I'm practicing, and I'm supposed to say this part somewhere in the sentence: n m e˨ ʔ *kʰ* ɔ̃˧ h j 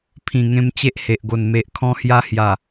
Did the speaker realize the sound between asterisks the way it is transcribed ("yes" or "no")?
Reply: yes